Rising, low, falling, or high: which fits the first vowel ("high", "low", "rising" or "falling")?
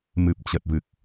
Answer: low